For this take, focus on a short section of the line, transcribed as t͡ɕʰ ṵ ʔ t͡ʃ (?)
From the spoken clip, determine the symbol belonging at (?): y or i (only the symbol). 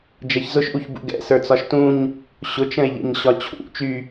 y